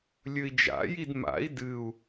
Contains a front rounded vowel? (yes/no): no